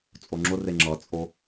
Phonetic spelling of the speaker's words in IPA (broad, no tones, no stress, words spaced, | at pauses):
t͡sʼoŋ͡ǁʊre ŋ͡ǁʌt͡sʼo